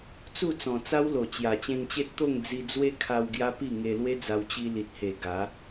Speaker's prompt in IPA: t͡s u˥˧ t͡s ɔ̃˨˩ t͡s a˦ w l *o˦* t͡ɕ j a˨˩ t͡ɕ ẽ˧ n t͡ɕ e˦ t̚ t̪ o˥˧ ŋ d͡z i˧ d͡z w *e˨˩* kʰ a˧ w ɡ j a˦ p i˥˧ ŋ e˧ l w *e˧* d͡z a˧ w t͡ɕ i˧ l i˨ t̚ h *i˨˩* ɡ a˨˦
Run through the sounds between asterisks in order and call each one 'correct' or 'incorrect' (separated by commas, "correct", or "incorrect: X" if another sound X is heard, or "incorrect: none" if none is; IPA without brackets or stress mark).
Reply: incorrect: o˨˩, incorrect: e˦, incorrect: e˦, incorrect: e˨˩